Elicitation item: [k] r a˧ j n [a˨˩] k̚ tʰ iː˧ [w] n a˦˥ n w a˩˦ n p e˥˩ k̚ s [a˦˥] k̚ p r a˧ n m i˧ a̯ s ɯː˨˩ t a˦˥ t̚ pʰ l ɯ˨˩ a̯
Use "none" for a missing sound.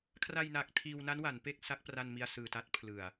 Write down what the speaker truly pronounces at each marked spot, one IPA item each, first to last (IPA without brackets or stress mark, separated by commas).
kʰ, a˨˩, w, a˦˥